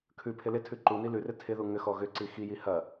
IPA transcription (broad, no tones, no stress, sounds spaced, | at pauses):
kʰ ʉ pʰ ɪ l ɪ tʰ ʉ ǃ u n i l ʉ r ɪ tʰ ɪ ð u ŋ ʏ x ɔ ɣ ʏ ǀ i x i j i h ɐ